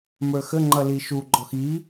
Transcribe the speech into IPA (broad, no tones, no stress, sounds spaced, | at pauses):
m ə˞ x ə ŋ͡ǃ ʌ l i ʃ u ɡ͡ǃ ɔ x i